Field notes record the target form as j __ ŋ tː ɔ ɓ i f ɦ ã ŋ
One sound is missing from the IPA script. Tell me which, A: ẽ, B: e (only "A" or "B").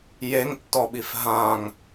B